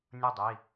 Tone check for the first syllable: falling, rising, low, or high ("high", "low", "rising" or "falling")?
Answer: falling